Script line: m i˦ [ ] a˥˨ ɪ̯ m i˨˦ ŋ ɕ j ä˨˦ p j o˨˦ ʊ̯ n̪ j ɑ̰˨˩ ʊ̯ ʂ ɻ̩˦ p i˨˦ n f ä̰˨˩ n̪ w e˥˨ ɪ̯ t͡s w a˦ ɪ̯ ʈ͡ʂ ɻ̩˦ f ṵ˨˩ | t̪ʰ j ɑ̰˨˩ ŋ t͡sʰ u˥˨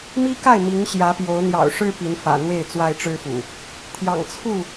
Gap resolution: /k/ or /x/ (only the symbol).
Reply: k